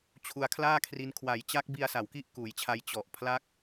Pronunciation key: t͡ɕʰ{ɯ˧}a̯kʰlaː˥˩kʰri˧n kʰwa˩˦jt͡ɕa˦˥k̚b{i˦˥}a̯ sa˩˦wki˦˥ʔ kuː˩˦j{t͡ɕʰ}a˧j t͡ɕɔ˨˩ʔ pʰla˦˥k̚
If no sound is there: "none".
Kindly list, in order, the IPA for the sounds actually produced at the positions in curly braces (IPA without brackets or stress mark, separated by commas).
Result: u˧, i˧, t͡ɕʰ